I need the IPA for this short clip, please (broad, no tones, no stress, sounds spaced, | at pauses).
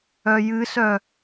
œ j ɨ s œ